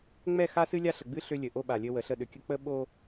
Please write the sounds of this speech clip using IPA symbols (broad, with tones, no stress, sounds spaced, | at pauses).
ŋ͡m ɛ˦˨ x a˦ s ɨ˦ lʲ a˦ ɬ ə˨ ɡ͡b ɨ˦ ɬ ʏ˦ lʲ ɘ˨ ʔ o˦ ɓ a˨ lʲ ɘ˦ w ə˨˦ ɬ ə˦ ɗ ʏ˨ kʲ ə˦ k͡p ə˦ ɓ o˦